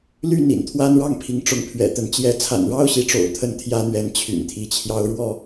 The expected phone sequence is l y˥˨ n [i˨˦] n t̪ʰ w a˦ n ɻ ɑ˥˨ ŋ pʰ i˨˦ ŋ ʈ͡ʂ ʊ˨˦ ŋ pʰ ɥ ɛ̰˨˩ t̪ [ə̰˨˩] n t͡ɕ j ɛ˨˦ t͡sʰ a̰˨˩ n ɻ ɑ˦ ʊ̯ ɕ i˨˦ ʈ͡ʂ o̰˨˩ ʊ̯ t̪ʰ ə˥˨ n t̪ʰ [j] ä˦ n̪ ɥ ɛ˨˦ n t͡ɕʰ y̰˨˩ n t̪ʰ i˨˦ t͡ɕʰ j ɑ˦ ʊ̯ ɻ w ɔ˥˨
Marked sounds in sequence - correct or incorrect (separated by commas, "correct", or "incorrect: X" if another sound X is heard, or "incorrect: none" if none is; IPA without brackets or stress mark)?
incorrect: ḭ˨˩, incorrect: ə˨˦, correct